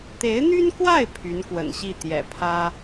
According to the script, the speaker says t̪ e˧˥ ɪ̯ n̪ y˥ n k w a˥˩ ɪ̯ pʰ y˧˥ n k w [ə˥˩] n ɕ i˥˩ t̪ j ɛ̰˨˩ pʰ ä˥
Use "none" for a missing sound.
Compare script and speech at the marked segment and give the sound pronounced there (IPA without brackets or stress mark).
ə̰˨˩